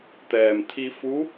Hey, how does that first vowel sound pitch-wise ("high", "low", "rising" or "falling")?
low